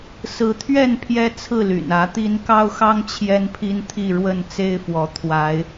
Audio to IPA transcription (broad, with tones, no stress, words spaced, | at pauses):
sɹ̩˨˦t̪ʰɥɛ˥˨n pʰjɛ˦t͡sʰɹ̩˥˨ly̰˨˩n ä˨˦t̪i˦n kɑ˦ʊ̯xɑ˦ŋ t͡ɕʰjɛ˦npʰi˦n t̪ʰi˥˨ɻwə˥˨n t͡se˦ɪ̯fwɔ˨˦ t̪ʰwa˨˦ɪ̯